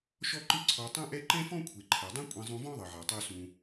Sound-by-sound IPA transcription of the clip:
ʃ ɔ˥ ǃ ɯ˥ ǀʰ ɔ˧ tˤ ũ˥ ʔ ɛ˥ ǃ ɛ̃˥ f ɔ̃˥ kʷʰ e˩ ǃʰ ɛ˩ dˤ ɛ̃˥ kʷʼ ẽ˧ zˤ ũ˧ v ɔ̃˥ ðˤ ɤ˩ ʕ a˩ tˤ o˧ s ũ˩

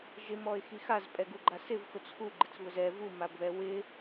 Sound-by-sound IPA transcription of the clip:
ʒ ɪ m ɔ ɪ̯ x i x a z pʼ ɛ ɡ u ɡ͡ǃ a s ɪ v x ʊ t͡s x u ɡ͡ǃ ɪ t͡s β ʊ z ɛ v u m a b β ɛ w ɪ

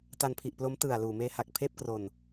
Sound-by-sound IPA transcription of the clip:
t a˧ n pʰ i˨˩ ʔ p l o˦˥ m t ɯ˨˩ a̯ l uː˨˩ m eː˦˥ h a˨˩ k̚ pʰ eː˥˩ p̚ k r o˧ n

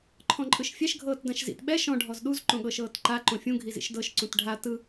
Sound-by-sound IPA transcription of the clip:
ǃʰ ɔ̃ ǃʼ ɯ ʃ fʲ ɛ ʃ ɡʱ ɤː t d ã ʃ z ḭ t ɓ ɛ ʃ ɔ̃ ɖʱ ɔ z ɗ u z ǃ õ ɠ ɤ ʃ ɤː t ǃ a ǃ õ fʲ ũ ɡʱ i z ḭ ʃ d ɤ ʃ ǀ ũ t ɖʱ a t ɯ

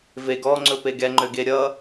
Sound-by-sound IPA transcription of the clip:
v e ɡ ɔ ŋ͡ǀ ɵ p e ɡ ɛ ŋ͡ǃ ø ɡ e ɾʲ ʌ

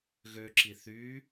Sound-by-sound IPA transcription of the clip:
ɣ ø ǁ i θ y

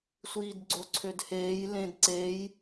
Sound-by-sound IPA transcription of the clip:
sʷ iː d ɡ͡ǀ o ǀʰ ø d h eː j l ẽ d ǀ e j

